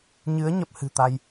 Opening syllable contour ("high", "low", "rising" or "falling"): rising